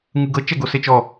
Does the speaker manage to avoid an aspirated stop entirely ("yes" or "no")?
yes